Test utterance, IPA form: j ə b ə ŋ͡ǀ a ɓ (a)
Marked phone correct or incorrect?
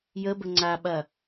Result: incorrect